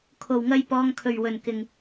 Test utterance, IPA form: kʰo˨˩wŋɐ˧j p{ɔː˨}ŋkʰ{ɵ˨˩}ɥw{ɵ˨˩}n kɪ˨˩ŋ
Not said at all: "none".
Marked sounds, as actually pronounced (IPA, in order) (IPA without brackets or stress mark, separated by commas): ɔː˨, ɵ˨˩, ɵ˨˩